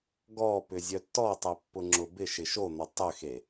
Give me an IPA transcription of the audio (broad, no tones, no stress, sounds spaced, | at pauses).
ɡ ɔ p ʏ zʲ œ tː ɔ tˤ e pː ʊ ŋ͡ǁ ʊ b ɪ ʃ ɪ ʃ o n̪ ɔ tˤ ʏ x e